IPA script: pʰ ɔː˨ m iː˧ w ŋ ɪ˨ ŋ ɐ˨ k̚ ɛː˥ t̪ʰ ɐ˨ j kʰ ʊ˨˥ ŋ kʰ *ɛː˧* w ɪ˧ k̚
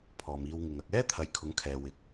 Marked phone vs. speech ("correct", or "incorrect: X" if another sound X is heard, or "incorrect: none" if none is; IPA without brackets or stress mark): correct